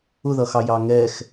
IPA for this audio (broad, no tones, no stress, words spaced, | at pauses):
ʊðʌxɑ jɑŋɛx